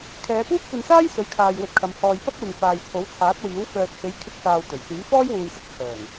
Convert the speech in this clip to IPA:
kʰ ɛː˨˧ p uː˥ p̚ kʷ ɐ˧ n s aː˥ j s ɵ˨˥ ɥ kʰ aː˨ j w ɵ˧ t̚ kʰ ɐ˨˧ m h ɔː˨ j p ɐ˥ k̚ w ɪ˨ ŋ f aː˨ j t͡sʰ o˨˥ w t͡sʰ aː˨˥ t̚ w iː˨˥ w f œː˨ t̚ h e˨˥ j kʰ ɪ˧ k̚ s aː˨ w t̪ ɵ˨˩ ɥ s yː˨˥ f ɔː˥ j w uː˨ j s ɪ˥ k̚ t͡sʰ œː˨˩ ŋ

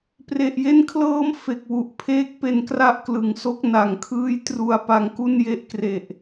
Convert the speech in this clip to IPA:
p r e˨˩ ʔ j e˦˥ n kʰ l ɤː˦˥ m f e˨˩ k̚ w u˨˩ ʔ pʰ eː˦˥ k̚ p e˧ n k r a˥˩ ʔ k l ɯ˨˩ ŋ s o˥˩ k̚ n a˨˩ ŋ kʰ ɯː˦˥ j t r u˧ a̯ p a˧ ŋ k u˥˩ n j e˦˥ ʔ k r e˨˩ ʔ

